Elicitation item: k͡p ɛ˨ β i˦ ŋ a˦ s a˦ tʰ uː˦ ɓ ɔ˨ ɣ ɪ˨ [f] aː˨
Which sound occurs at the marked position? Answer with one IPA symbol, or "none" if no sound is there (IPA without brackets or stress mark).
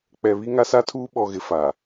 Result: f